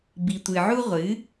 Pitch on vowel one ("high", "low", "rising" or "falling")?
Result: low